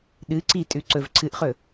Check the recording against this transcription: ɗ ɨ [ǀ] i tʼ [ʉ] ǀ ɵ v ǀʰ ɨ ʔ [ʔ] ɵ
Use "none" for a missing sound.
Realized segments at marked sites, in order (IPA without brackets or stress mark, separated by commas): ǀ, ʉ, χ